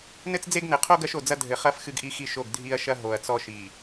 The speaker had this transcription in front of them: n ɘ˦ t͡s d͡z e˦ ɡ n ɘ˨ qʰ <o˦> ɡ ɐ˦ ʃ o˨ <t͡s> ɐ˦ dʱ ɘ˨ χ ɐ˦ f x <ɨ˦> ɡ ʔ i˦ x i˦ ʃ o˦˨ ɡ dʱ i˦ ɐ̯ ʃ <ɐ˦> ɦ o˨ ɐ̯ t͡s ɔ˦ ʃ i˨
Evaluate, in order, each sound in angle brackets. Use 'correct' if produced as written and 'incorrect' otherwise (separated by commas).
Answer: correct, incorrect, correct, correct